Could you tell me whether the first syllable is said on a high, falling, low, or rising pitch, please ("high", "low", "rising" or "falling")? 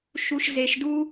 low